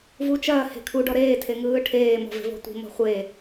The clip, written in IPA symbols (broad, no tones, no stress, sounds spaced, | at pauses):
v u t͡ʃ ɐː h e̤ kʰ u ɖ ɔ ɾ eː tʰ e ŋ ɯː ʈʰ eː m ɔ̤ v e̤ v ɔ̤ tʷ i̤ m ɔ̤ χʷ e